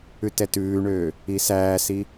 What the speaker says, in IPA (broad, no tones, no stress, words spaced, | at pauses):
ʉtɛtʉːɳøː | isæːsi